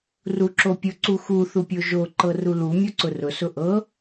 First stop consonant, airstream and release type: click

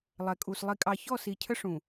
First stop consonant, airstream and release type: ejective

